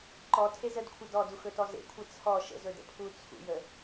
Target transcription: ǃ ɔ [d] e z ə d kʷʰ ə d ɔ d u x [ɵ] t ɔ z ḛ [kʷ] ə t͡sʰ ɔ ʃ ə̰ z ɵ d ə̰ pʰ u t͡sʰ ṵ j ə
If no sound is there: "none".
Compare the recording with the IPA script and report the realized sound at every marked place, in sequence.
tʰ, ɵ, kʷʰ

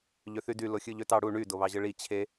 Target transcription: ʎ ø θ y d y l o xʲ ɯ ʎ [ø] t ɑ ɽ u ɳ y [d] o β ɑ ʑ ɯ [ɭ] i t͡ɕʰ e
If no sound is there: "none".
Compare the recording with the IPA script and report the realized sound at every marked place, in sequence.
ø, d, ɭ

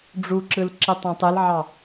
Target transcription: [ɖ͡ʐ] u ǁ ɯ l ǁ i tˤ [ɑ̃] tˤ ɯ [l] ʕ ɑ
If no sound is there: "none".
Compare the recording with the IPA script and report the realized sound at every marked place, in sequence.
ɖ͡ʐ, ɑ̃, l

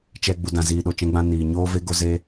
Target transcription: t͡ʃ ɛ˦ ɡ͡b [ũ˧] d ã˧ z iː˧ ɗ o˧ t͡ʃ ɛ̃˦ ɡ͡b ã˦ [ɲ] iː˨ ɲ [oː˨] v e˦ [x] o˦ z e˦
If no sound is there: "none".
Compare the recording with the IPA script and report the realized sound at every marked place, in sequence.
u˧, n, oː˦, ɡ

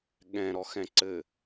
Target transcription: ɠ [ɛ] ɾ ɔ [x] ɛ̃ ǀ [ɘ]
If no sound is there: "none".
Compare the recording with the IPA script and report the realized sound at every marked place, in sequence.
ɛ̃, x, ɘ

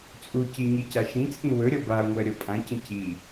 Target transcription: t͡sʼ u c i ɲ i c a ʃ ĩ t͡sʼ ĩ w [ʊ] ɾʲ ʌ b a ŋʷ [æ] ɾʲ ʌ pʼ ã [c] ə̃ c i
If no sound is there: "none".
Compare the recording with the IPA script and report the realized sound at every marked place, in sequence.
ɵ, ɜ, c

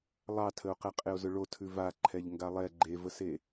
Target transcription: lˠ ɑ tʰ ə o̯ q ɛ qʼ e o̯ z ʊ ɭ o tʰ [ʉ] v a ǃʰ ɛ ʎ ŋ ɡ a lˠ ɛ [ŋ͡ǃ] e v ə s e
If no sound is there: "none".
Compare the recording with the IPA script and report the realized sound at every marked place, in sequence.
ʉ, ɡ͡ǃ

